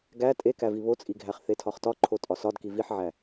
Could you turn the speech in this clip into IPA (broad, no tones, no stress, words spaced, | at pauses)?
ɡæ tʼekævi βot͡sʼiɡʱæχ θetʰɒχtɒ ǃʰotʼɒsɒd kiviħʕæ